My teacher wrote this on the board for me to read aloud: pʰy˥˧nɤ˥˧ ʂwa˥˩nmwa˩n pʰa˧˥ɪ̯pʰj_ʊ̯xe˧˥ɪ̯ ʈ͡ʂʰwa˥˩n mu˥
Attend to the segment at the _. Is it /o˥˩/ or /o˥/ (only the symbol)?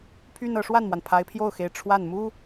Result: o˥˩